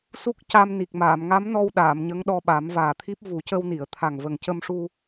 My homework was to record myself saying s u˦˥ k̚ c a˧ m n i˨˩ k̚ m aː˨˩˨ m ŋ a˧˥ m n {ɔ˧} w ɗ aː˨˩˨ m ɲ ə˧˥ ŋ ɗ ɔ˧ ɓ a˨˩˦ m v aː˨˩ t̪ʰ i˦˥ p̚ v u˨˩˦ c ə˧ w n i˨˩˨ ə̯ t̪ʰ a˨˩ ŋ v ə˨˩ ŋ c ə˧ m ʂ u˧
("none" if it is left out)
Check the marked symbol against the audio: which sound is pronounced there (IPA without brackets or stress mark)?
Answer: ɔ˧